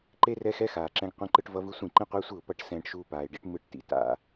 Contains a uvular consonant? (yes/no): yes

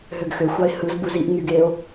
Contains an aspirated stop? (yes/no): no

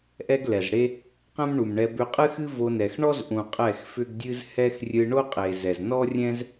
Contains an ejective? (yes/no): yes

